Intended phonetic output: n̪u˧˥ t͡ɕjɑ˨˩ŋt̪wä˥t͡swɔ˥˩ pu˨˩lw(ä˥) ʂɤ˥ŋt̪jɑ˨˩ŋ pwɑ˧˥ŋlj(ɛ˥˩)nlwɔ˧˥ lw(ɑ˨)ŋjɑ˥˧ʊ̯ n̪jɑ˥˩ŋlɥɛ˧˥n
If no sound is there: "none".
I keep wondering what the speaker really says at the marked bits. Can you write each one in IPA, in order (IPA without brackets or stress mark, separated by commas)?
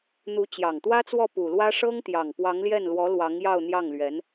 ä˥, ɛ˥˩, ɑ˧˥